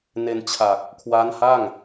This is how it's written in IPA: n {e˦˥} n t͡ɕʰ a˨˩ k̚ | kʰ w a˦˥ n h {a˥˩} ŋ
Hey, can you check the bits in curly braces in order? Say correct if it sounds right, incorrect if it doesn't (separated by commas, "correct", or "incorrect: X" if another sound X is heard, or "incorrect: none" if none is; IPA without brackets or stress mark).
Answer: incorrect: e˧, correct